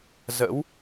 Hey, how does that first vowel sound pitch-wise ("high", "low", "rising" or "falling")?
rising